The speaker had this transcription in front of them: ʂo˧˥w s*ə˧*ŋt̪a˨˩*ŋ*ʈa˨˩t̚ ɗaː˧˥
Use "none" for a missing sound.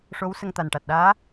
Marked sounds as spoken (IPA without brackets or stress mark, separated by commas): ə˧, n